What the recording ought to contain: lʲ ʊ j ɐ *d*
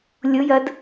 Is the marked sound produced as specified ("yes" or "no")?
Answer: yes